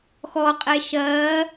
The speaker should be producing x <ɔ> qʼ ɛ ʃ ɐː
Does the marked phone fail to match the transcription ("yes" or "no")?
no